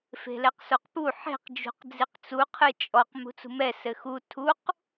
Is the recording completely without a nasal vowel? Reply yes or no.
yes